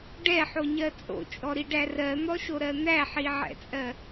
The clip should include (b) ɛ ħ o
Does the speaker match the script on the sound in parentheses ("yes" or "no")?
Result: no